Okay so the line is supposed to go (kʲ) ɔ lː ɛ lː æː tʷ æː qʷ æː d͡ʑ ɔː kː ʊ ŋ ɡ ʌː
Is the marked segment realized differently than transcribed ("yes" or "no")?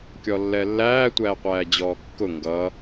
no